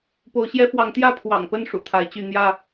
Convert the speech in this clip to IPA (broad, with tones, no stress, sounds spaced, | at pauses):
p o˨˦ ʊ̯ ɕ j ɛ˦ f w ɑ˨˦ ŋ t̪ j ä˥˨ pʰ w ɑ̰˨˩ ŋ p ə˥˨ n ʂ ṵ˨˩ t̪ʰ a˨˦ ɪ̯ t͡ɕ y˥˨ n̪ j ä˥˨